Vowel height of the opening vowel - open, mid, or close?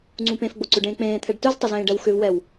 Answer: close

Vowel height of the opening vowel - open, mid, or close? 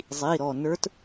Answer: close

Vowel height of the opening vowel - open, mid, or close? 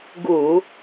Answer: close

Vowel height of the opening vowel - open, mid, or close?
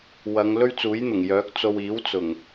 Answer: open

